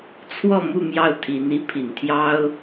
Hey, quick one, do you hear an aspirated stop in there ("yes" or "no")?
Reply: yes